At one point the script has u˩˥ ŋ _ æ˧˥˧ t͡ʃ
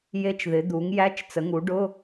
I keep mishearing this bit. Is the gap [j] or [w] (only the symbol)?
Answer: j